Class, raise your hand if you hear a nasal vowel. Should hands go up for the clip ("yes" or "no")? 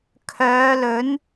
no